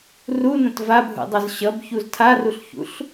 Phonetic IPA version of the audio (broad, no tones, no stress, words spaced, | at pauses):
runə̃t vabʱṵdˤʌz ɕʌbçuz tʰaruɬçṵɬ